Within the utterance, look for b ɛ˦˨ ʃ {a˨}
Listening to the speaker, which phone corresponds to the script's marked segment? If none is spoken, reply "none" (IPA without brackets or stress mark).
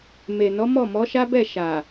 a˨